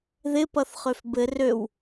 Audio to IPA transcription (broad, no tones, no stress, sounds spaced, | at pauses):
ð ɪ p ʌ θ χ ø f b ɘ r ø w